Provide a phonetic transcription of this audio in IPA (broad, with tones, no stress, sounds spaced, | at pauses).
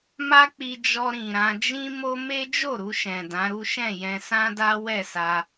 m a˦ k͡p i˧ d͡ʒ ɔ˧ ɾ ĩ˨ ɾ ã˧ d͡ʒ ĩ˦ m o˦ m e˦ d͡ʒ o˦˨ ɾ u˧ ʃ ɛ̃˨ d ã˨˦ ɾ u˦ ʃ ɛ̃˦˨ j ɛ̃˧ s ã˦ d a˦ w ɛ˦˨ s a˧